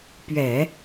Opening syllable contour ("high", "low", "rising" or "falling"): low